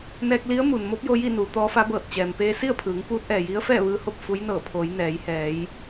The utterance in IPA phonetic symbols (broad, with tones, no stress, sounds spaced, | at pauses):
n ɛː˧ k̚ l i˧˥ ə̯ m u˩ n m o˧˥ p̚ j o˧ j i˥˨ n uː˩˧ t̪ ɔː˧˥ f a˧˥ b ɤː˧˩ t̚ t͡ɕ ɛː˩ m p eː˧ s i˥˨ ə̯ pʰ ɯː˩˧ ŋ p uː˧˥ t̚ ʔ ɛː˩ j i˧˥ ə̯ f ɛː˥˨ ʋ ɯː˧ h o˥˨ p̚ f u˧˥ j n ɤː˧˩ pʰ oː˩˧ j n ɛː˩˧ j h ɛː˩˧ j